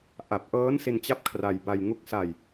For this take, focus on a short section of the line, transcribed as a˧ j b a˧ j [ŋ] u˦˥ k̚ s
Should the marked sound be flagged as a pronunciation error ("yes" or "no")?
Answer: no